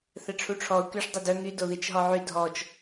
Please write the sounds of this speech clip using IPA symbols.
θɛʈ͡ʂʰuʈ͡ʂʰɔʊ̯ kyʂ dˤɛdœ ŋy doðit͡ʃɦɔʕy dʱɔt͡ʃ

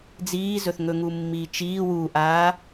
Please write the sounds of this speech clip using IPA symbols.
d͡ziːzɵθŋɵ ŋumːiːt͡ʃiː wuʔaː

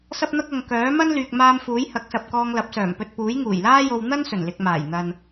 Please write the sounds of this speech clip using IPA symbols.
sɐ˧p̚n̪ɐ˧k̚ ɐ˨ŋ kœː˨˥mɐ˥n lyː˨k̚maː˧m fuː˨˥jhɐ˨˥k̚sɐ˨p̚ kɔː˧ŋlɐ˨˥p̚sœː˨˩mpɵ˧t̚ puː˨˥jŋuː˨˩jlaː˥jo˧w n̪ɐ˥n sɵ˨˩nlɪ˨k̚maː˨˩j n̪ɐ˨n

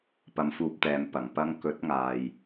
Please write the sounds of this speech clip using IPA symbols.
pɐ˧mfuː˧p̚t̪ɛː˨˧m pɐ˨˩ŋpɐ˥ŋ kɵ˨˥t̚ŋaː˨j

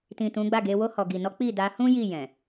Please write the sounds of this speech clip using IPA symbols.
tĩ˨ tũ˨˦ɡ͡ba˦˨ɡe˧ wo˧hɔ˨ɡi˨nɔ˨˦ k͡pi˦˨da˧ hũ˦ ji˦˨ jɛ̃˨

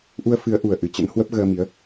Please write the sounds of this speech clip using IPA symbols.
ʔu˧ə̯fɨ˨˦ə̯ ʔu˨˩ə̯ʔɨ˨˩ t͡ɕə̰˧˥n hwə˦˥p̚ɣəː˧mi˨˦ə̯

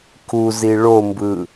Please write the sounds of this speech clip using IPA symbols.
kuzi ɭombɯ

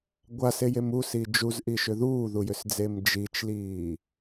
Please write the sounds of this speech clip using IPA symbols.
ɡʷasejem usi d͡ʒuzʔiʃʏ ðuːðujʏsd͡zem d͡ʒit͡ʃliː

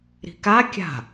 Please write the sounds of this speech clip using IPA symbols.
ɾi̤ka kʲa̤

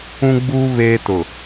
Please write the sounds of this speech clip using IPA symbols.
ũ˦ɡ͡buː˦ βeː˦tʊ˨

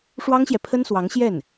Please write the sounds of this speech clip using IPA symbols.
ʂwɑ˥ŋɕjɛ˨pʰə˥nswɑ˧˥ŋ ɕjɛ˥˩n

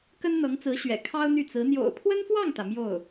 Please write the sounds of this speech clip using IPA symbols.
kə˥nn̪ɤ˧˥ŋt͡sɹ̩˧˥ɕɥɛ̰˨˩ kʰɑ˥ʊ̯n̪y˥˩t͡sɹ̩˧˥ n̪jo̰˨˩ʊ̯pʰwə˥nfwɑ˥˩ŋt̪ä˩ mjo˥˩ʊ̯

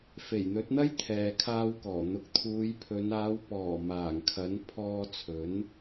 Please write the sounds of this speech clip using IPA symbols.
fe˨˩jn̪ɵ˨˥t̚n̪ɐ˥j t̪ʰɛː˨kʰaː˧wkɔː˨˩ n̪ʊ˨k̚t̪ʰuː˨˧jpʰɵ˨˧n aː˨˧wpɔː˨˩ maː˨˩ŋkʰɐ˨˥n pʰɔː˧ t͡sʰɵ˨˥n

